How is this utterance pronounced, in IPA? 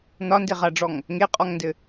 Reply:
n ɒ n d e ʁ a ɖ͡ʐ ɔ ŋ | ŋ e qʼ ɔ ŋ n d ɘ

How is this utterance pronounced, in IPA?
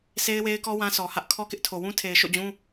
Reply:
sʰ e˦ ɪ̯ w e˦ ɪ̯ k ɔ˦ w ã˦ s ɔ˨ h ä˦ ʔ kʰ ɔ˦ k ɪ˦ ʔ tʰ o˨ w ũ˦ tʰ e˨ ɪ̯ ʃ o̰˦˨ d͡ʑ ũ˦

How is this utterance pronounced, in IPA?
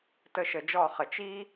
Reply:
t ə˦˨ ʃ ə˨˩˦ d͡ʒ ɔ˦˨ χ ə˨˩˦ t͡ʃ i˥

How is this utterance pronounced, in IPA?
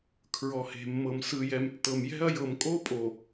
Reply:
kʰ ɹ ɔ˨ h e̤˨ mː ɤ˨ m s ɯ˨ j ɛ˨ m tː ɤ˨ m j ɛ̤˦ ɐ̯ j ɤ˨ m kʼ o˦ pʼ o˨

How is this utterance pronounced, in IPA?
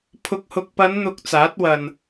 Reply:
pʰ ʊ˨ k̚ h ʊ˨ k̚ p ɐ˨˧ n n̪ ʊ˨ k̚ t͡s aː˨˥ t̚ w ɐ˨ n

